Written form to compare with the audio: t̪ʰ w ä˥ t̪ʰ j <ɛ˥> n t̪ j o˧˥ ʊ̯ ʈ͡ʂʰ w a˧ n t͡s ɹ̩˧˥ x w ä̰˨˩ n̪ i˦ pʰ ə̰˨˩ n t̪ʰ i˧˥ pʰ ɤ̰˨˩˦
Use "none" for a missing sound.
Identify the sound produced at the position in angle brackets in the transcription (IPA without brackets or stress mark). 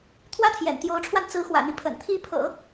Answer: ɛ̰˨˩